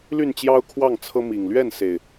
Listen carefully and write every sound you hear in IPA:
l y˥˨ n t͡ɕ j ɑ˦ ʊ̯ kʰ w ɑ˥˨ ŋ t͡sʰ ɤ˦ m i˨˩ ŋ l ɥ ɛ˥˨ n s e˨˩ ɪ̯

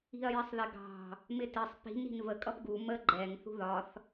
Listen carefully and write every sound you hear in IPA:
i̤ ɐ̯ j ɪ sˤ ð ɪ ɡ ɑ̤ | m ɪ t ɪ sˤ p i̤ n i̤ n v ə kʼ ʌ p ɡ u m ə ɡ͡ǃ ɛ ŋ θ ṳ ð ɒ θ

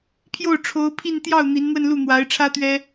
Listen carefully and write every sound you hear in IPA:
pʰ j o˥˩ ʊ̯ ʈ͡ʂʰ o˧˥ ʊ̯ pʰ i˥˧ n t̪ j ɑ˥˩ ʊ̯ n̪ i˧˥ n n̪ w ə˥˧ n l u˥˩ n̪ w a˧˥ ɪ̯ ʈ͡ʂʰ ä˥ t̪ ɥ ɛ˥

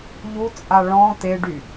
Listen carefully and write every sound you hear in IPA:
ʎ u t͡sʼ a ɭ ɔ̃ t̪ e ɖ y

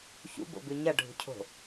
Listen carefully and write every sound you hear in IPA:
ç ṵ b o̰ b ʉ ɲ ɐ ɖʱ ṳ cʰ o̤

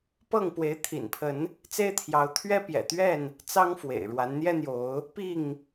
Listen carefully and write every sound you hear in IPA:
p ɤ˥˨ ŋ p w e˨˦ ɪ̯ t̪ʰ ḭ˨˩ n pʰ ə˨˦ n | t͡s e˦ ɪ̯ t̪ʰ j ɑ˨˦ ʊ̯ t̪ʰ ɥ ɛ˦ p j ɛ̰˨˩ t̪ ɥ ɛ˥˨ n | t͡s ɑ˦ ŋ f w ḛ˨˩ ɪ̯ ɻ w a˨˦ n n̪ j ɛ˦ n̪ j o˨˦ ʊ̯ | p i˥˨ ŋ

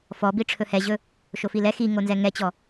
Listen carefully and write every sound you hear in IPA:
f ɔ b i ʈ͡ʂʰ ɵ h ɛ ʑ ɵ | ʃ o f i l ɛ x i ŋ o n z ɛ ŋ ɛ t͡ɕ ɔ

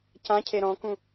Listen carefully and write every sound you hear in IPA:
c ã cʰ e ɾ ɔ̃ k ũ

